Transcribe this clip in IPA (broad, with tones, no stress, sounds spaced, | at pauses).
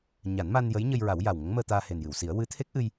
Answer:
ɲ a˨˩˦ n m a˧ n j ə˧˥ j ɲ ə˧ j ɹ a˨˩˦ w j a˨˩ w ŋ ə˧˥ ŋ m əː˧ t̪ aː˧ h e˨˩ n j ɨ˨˩˨ w s i˨˩˦ ə̯ w ɨ˧˥ t̪ʰ e˦˥ k̚ ʔ ɨ˧ j